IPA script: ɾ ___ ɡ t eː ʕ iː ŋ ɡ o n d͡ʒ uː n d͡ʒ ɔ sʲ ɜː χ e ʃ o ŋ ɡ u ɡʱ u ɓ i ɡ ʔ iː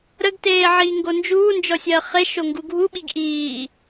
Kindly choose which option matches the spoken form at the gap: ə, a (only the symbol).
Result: ə